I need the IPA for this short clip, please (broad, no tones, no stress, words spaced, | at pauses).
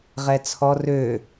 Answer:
ʁɛt͡sʰɔ rø